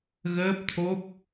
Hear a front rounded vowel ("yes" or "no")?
no